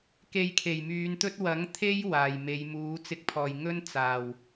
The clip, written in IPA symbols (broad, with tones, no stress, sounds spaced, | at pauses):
k e˧ j kʰ e˨˩ j m yː˨˧ n t̪ ɵ˥ t̚ w ɐ˨˥ ŋ t̪ʰ e˥ j w aː˨˩ j m e˨˧ j m uː˨˥ t͡s ɪ˨˥ k̚ pʰ ɔː˨˩ j ŋ ɵ˥ n t͡s aː˨˩ w